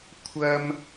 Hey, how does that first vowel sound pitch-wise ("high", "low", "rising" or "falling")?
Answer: high